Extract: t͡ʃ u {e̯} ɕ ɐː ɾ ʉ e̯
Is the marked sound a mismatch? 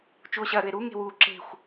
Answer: yes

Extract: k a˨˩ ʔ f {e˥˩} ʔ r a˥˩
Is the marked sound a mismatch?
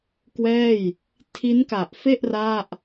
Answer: no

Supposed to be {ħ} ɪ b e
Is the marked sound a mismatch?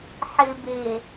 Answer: no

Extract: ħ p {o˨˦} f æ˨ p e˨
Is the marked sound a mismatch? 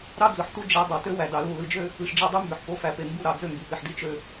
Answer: no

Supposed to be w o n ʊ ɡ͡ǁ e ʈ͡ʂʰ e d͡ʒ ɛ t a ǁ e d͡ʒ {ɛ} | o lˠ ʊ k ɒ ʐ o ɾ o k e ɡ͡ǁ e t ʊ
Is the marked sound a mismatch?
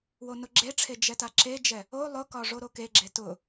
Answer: no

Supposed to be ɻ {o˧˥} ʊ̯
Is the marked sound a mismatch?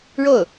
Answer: yes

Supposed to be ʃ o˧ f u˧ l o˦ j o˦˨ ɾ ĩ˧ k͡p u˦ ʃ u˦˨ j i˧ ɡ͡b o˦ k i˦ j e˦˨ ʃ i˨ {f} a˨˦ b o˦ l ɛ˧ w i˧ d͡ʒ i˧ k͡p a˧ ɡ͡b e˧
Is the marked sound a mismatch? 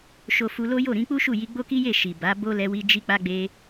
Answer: yes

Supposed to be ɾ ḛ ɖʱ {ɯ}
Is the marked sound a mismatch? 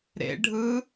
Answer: no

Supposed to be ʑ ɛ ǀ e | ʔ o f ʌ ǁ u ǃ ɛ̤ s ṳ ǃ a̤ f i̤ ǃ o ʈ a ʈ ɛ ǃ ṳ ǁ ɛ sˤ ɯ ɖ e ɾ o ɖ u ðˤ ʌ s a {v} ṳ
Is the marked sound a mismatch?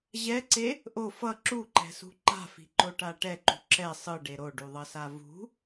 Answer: no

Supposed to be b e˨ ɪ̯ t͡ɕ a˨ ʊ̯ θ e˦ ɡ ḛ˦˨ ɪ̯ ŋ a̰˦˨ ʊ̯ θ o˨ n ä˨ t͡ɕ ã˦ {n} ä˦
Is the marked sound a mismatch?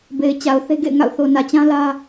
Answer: yes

